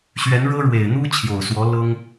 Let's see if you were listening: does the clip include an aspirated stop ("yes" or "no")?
yes